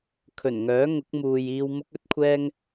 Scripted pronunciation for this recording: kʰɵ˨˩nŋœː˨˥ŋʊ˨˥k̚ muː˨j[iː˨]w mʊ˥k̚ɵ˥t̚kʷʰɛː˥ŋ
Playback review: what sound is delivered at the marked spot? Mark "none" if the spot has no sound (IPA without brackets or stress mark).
iː˧